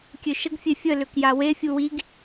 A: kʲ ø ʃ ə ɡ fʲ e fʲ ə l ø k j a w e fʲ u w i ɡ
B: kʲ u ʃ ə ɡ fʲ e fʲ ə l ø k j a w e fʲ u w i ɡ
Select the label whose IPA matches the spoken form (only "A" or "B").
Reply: A